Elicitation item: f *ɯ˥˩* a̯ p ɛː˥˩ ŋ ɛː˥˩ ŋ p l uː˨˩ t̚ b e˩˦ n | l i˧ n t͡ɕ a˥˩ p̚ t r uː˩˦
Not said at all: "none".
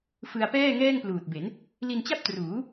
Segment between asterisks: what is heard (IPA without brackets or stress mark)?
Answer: ɯ˧